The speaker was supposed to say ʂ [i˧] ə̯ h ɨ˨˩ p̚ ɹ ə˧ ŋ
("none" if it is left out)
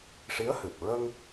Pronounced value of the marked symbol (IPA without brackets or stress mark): i˧˥